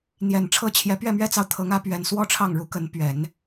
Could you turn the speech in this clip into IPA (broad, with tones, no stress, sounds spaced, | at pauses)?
n̪ j ɛ˨˩ n ʈ͡ʂʰ ɤ˥ t͡ɕʰ j ɛ˧˥ p ɥ ɛ˥˩ m ɥ ɛ˥ t͡s ɑ˨ ʊ̯ t̪ʰ ɤ˧˥ ŋ ä˧˥ p ɥ ɛ˨˩ n s w ɔ˥˧ ʈ͡ʂʰ ɑ˥˩ ŋ ɻ u˧˥ k ə˧˥ n p ɥ ɛ˨˩˦ n